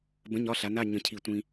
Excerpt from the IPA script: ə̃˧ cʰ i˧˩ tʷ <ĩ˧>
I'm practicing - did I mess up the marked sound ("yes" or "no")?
no